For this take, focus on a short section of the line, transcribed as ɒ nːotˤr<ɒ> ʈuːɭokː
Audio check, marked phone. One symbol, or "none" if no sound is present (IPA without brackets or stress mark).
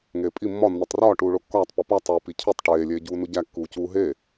ɒː